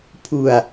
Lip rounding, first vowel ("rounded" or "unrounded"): rounded